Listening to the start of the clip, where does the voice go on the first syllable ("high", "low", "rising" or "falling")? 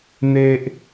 high